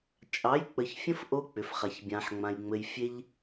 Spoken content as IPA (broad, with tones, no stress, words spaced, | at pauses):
t͡ʃʼɑ˨˦jk͡pə˨çfʲə̃˦f ʔo˦k͡pʏ˨fχa˨ç bʲã˨ħŋ͡mã˨j ŋ͡mɘ˨j fʲe˦ʎ